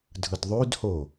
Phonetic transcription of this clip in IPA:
dʱ ɯ d ðˤ ʉ d h o

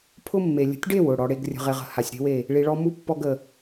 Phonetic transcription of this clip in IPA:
pʰ ʊ˦ mː e˨ lʲ ə̤˨˦ tʲ ɖ e˦˨ w ʊ˦˨ ɽ ɔ˨ ɽ e˨ ɡ rʲ ə̤˨ ʁ e˨ ʁ ə̤˨ h a˨ sʲ ɾ e̤˦ w e˦˨ | ɭ i˨ ɭ ɔ˦ m u˦ pː ɔ˦ ɡ ə˨

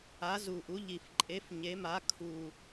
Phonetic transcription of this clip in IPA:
a˨˥ z u˨˩ ʔ u˨˥ ʎ i˨˩ f ǃʼ e˨˥ f ɲ e˨˥ m a˨˥ kʰ u˨˩

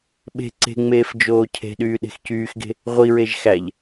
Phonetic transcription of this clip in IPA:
ɓ e̤ ǀ e̤ ŋ͡m eː f d͡ʒ oː cʰ e̤ ɗ yː ɗ e̤ x c yː x ɡ e̤ | ʁʷ i ɹ e ʒ x æ ʎ

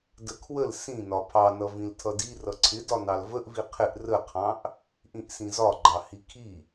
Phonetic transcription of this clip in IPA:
d ə kʰ w ə l s ĩ n ɒ pʰ ɑ n ʌ v ĩ l tʰ ʌ d i r ʌ ǀʰ ɪ d ɒ n ɑ l v ə ʔ v i qʰ ɪ ʔ r ə qʰ ɑ̃ ʔ | ʔ ĩ ʔ s ĩ z ɒ ɡ͡ǃ ɑ h i kʰ i

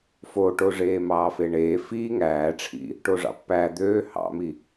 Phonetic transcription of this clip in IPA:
f o ʈ o ʐ eː m ɑː f e ɳ eː f iː ŋ æː ʈ͡ʂʰ ḭ | ʈ o ʐ ɑ̰ pː æ d̪ øː h ɑ̰ m i

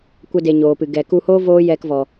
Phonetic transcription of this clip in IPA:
kʷ ɛ˦ d e˧ ɲ oː˨ p ɨ˨ ɡ ɛ˨ k u˧ h oː˦ v oː˦ j ɛ˧ k v ɔ˨

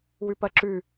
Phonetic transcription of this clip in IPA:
w ʉ p ɐ ǁ ʉ

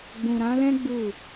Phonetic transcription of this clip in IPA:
ɡ͡b ũ˨ ɾ ã˨˦ l ɛ̃˦ ɡ͡b u˦˨

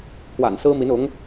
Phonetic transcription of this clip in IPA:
pʰ w a̰˨˩ n s ɹ̩˥ m i˧˥ n ʊ˧˥ ŋ

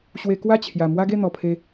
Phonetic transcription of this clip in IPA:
ɕ w e˧ k w a˥˧ t͡ɕʰ j a˨˩ m w a˦ ɡ e˥˧ n̪ ɔ˨˩ pʰ e˧

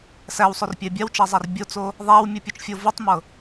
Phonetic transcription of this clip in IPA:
s æ w sˤ o r pʲ æ bʲ a w t͡ʃ æ zˤ a r bʲ o t͡s o | ðˤ æ w mʲ u pʲ u t͡ʃ fʲ o v u tˤ m ɤ

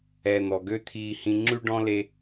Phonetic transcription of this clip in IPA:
ɛ˩ n̪ ɔ˩ ɡ ø˥ t̪ʰ iː˧ h ĩ˧ ŋ͡ǁ ʉ˥ ɖ ɔ̃˥ l e˧

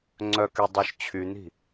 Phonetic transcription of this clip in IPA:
ŋ͡ǀ œ k y dˤ ø ʃ t͡ɕʰ y n̪ i̤

